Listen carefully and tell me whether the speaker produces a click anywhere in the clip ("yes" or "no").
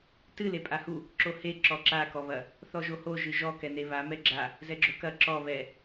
yes